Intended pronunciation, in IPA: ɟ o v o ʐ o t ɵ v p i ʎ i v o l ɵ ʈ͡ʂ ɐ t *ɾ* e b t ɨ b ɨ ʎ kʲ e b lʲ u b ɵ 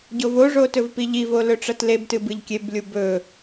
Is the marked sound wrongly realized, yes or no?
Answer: yes